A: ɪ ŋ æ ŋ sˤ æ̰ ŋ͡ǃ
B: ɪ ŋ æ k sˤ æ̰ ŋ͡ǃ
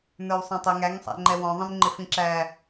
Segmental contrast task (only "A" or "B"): A